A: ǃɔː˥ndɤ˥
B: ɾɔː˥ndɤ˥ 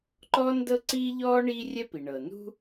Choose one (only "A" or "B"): A